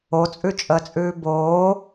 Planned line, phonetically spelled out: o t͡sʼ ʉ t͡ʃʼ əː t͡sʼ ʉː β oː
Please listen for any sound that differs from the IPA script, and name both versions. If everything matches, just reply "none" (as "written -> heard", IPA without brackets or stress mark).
β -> b